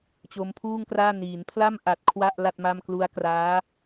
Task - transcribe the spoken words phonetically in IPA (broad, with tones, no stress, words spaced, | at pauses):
t͡ɕo˧mpʰuː˥˩ŋkraː˥˩ niː˩˦npʰla˥˩m ʔa˨˩t̚ kʰwa˥˩ʔ la˥˩t̚ma˥˩m klu˦˥a̯kraː˦˥